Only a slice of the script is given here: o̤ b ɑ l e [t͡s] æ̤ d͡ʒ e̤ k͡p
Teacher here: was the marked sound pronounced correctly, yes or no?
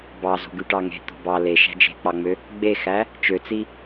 no